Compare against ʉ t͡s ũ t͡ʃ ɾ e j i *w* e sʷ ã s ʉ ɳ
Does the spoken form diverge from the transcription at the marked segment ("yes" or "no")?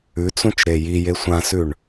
yes